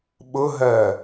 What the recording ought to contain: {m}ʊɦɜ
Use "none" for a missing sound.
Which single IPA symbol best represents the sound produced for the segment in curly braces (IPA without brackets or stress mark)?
ɓ